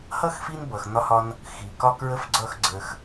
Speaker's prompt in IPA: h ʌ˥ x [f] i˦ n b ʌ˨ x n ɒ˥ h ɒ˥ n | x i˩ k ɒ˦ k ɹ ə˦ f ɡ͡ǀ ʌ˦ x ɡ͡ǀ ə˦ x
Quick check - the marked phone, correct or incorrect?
correct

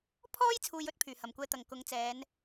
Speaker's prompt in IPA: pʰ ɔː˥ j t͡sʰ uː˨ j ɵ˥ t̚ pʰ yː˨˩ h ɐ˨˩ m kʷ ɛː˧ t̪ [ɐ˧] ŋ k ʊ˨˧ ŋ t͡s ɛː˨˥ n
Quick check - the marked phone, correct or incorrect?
incorrect: ɐ˨˩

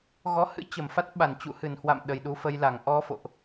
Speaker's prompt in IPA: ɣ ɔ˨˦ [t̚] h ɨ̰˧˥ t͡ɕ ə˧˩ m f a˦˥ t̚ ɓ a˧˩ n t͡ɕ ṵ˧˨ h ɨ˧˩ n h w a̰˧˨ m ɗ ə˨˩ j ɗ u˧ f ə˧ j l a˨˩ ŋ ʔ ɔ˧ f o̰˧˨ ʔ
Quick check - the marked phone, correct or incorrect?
incorrect: none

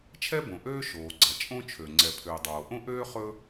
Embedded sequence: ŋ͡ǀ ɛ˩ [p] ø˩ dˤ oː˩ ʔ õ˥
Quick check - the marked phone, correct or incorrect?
incorrect: pʰ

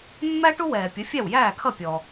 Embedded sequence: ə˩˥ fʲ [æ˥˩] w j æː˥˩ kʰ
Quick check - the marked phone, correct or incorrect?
correct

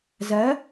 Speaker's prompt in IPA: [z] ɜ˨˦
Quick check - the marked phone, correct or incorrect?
correct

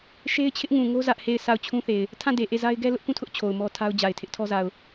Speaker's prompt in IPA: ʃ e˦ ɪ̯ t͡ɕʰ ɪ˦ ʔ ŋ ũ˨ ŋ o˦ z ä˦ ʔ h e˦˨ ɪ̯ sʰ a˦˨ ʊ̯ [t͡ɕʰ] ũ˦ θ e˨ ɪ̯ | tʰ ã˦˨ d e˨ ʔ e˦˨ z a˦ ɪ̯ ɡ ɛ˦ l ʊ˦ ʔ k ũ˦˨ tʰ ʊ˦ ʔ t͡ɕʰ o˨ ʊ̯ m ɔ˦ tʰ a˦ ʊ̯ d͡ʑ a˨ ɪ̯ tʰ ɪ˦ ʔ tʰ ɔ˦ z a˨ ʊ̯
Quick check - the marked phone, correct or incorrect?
correct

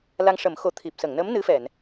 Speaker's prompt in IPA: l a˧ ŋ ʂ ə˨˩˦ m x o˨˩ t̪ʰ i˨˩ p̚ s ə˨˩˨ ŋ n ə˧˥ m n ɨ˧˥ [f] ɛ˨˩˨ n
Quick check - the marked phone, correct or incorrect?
correct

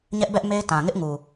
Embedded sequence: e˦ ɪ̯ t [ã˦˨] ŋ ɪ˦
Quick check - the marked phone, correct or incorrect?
incorrect: ã˨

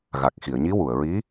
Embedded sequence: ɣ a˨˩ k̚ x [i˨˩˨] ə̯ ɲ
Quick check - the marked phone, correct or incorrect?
correct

